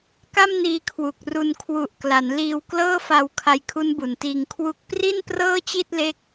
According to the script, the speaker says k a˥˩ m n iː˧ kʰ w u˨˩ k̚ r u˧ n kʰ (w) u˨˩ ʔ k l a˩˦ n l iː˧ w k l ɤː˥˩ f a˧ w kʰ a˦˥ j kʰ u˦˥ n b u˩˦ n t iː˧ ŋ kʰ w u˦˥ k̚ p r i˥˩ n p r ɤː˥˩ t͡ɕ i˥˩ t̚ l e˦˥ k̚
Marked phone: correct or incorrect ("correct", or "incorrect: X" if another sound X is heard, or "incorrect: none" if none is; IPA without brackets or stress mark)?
correct